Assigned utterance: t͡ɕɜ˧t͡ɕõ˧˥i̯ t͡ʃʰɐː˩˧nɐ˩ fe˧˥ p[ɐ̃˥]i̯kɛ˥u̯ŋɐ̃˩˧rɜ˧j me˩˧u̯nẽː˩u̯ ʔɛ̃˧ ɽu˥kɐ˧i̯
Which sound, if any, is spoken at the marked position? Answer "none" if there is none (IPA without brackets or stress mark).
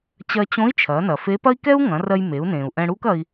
ɐ˥